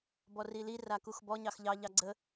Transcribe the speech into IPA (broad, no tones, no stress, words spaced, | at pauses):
bɔrili rakuxbɔ ɲɑxʎɑ ʎɑɡ͡ǀə